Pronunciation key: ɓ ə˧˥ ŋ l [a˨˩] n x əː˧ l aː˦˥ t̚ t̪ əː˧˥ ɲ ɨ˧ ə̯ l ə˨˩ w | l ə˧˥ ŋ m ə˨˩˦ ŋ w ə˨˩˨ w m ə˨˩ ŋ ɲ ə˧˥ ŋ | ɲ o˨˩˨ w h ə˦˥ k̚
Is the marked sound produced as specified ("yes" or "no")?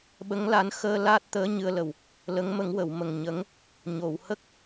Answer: no